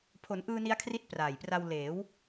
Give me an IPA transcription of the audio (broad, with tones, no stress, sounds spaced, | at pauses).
pʰ o˩˦ n ʔ ɯː˧ n i˦˥ a̯ kʰ r i˦˥ t̚ p r aː˨˩ j p r a˧ w l eː˩˦ w